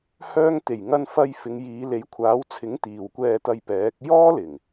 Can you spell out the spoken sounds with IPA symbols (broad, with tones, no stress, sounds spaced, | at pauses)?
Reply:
h œː˧ ŋ t̪ e˨˩ j ŋ ɐ˧ n f ɐ˧ j f ɪ˨˧ ŋ j iː˨˧ l e˨˥ j kʷʰ aː˨˥ w t͡sʰ ɪ˨˥ ŋ t̪ iː˨ w kʷ ɛː˧ t̪ ɐ˧ j p ɛː˨˥ k̚ j ɔː˥ l ɪ˨˩ ŋ